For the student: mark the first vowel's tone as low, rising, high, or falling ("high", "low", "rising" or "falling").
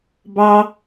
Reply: high